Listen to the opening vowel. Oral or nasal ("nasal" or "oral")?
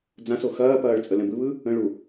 nasal